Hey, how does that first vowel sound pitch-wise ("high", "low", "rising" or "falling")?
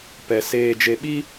low